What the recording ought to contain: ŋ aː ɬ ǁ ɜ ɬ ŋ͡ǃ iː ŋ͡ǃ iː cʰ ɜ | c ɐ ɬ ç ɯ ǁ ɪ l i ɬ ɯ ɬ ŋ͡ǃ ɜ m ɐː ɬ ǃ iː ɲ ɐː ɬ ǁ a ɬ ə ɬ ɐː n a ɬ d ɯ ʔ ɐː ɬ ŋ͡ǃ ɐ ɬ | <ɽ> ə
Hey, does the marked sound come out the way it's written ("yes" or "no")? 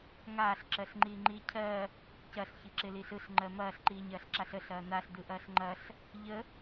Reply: no